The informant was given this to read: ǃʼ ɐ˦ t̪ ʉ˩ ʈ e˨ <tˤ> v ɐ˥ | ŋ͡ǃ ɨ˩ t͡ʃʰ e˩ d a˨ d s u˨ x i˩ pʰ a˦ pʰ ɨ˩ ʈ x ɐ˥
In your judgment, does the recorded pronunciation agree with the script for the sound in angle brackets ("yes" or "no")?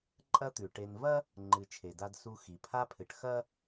no